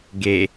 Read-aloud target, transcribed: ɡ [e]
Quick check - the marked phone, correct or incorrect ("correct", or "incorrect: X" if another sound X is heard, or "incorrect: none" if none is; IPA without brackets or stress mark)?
correct